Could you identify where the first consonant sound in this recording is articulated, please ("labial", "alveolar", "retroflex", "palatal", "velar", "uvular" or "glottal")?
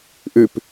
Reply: glottal